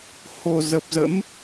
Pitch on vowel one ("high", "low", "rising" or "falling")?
low